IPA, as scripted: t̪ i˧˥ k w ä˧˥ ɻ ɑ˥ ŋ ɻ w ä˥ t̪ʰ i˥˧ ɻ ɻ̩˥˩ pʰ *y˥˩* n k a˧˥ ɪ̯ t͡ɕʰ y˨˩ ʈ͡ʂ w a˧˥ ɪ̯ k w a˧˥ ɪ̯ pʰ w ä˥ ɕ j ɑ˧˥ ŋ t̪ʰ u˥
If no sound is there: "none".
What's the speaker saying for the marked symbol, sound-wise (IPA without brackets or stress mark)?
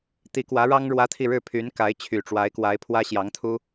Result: y˧˥